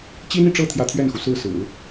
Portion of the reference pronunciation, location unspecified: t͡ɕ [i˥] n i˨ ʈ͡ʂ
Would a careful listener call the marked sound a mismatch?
no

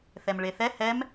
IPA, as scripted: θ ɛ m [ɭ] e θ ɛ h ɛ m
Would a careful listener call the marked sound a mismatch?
no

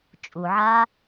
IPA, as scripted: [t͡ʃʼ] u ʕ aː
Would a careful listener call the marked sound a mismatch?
no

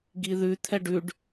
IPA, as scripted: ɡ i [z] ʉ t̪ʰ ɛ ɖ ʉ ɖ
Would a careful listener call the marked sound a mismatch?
yes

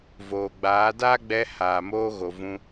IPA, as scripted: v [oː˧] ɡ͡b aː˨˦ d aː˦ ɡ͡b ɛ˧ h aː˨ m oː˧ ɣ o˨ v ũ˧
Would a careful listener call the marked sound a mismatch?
yes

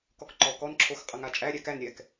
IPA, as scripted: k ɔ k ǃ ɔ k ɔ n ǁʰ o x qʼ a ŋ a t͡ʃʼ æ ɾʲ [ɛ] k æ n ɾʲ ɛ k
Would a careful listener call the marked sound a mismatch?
yes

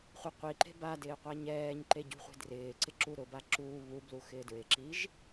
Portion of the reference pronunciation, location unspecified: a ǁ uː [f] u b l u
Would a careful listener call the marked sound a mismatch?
yes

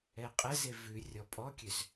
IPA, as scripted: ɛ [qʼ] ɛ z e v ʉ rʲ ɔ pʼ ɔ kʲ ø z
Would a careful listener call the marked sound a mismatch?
no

